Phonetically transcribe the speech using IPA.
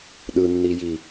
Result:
ɗɯnːiji

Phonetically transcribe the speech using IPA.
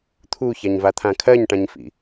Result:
t̪ʰuçaɲvat̪ʰã kʰɜɲʈãɲfḭ

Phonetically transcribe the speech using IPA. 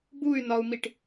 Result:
buy̯nɒu̯miʈ

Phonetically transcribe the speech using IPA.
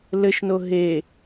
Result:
lɘʃno ɦe

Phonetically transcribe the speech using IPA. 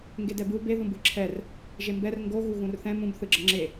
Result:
ŋɡedɛbɯw be ðũbɯǁʰɛr | ʒembɛr ŋɡo ɣuɣũrθɛ̃ mũb θɯɡ͡ǁʌŋ͡ǁe

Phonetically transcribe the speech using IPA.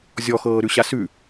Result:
zʲɔxɤːɾʉɕa sʉ

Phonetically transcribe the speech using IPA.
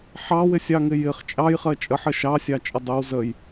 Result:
ħɑwɪsʲɑŋɪ jɪχ t͡ʃʼɑjχɜ t͡ʃʼəħɜʃ ɑsʲɑt͡ʃʼə dˤəw zəj

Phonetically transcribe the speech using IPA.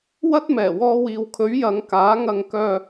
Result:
wɐ˥t̚ mɛː˨˩wɔː˧wiː˨wkʰɵ˨˥ɥ jɐ˨˧ŋ kaː˨˥ŋɐ˧ŋkœː˧

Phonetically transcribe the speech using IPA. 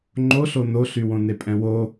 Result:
ŋ͡ǃoɬo noɬywõne pʼɛ̃wo

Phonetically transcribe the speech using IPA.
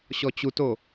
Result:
ɕɔt͡ɕuto

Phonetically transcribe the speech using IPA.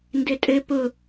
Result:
ndɘtʼɘ pʊ

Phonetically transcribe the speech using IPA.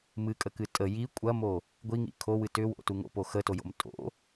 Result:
mɨkʼəkɨ tʼə ji kʷʼɐmo | ɡʷiŋḭ kʰowɨ tʏwo̰tu ŋo̰po xətojo̰m tʼo̰

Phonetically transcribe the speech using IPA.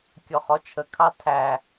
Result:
kʲɔχɔt͡ʃʰə kʰɑtʰæ

